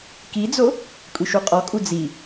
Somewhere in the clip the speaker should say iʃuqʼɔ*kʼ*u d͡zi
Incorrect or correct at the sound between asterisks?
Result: correct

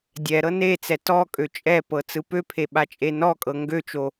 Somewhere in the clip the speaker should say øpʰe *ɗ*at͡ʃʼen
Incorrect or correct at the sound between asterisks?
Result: incorrect: ɓ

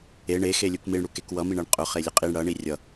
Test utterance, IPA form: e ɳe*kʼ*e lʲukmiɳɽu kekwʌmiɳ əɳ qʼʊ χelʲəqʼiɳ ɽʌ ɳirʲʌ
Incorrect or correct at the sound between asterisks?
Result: incorrect: x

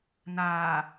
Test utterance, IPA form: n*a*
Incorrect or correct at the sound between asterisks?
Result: incorrect: aː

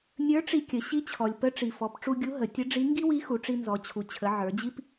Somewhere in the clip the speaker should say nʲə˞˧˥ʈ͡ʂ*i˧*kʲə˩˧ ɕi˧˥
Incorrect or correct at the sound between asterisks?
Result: correct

